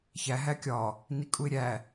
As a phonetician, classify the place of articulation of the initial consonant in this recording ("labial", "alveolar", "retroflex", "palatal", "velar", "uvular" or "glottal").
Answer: palatal